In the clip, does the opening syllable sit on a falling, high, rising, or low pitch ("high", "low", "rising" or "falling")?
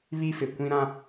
high